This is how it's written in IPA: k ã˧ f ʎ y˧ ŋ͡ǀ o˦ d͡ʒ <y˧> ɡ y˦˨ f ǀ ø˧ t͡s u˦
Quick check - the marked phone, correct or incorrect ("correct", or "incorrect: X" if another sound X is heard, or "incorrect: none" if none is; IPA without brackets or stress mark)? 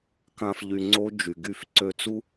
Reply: incorrect: y˨